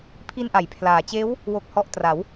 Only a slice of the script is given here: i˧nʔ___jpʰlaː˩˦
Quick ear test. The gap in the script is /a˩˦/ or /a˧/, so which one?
a˩˦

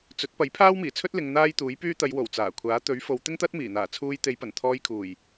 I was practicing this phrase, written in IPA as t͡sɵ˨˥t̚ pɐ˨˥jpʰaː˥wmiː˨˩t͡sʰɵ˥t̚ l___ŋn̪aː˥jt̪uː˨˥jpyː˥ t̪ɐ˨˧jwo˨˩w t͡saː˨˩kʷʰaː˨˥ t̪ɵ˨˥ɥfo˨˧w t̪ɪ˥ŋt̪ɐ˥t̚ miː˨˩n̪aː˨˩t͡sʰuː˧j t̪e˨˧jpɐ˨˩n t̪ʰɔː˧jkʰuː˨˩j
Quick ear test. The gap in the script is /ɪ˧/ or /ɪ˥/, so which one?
ɪ˧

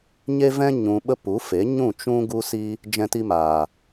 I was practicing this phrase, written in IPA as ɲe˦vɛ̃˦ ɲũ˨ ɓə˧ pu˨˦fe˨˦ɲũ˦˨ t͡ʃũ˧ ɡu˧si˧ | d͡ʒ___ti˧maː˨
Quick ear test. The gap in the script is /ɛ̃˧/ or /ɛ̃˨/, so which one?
ɛ̃˧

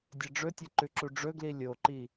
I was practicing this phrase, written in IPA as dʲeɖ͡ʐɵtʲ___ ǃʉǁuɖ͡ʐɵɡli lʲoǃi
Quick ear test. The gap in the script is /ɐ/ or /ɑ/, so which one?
ɐ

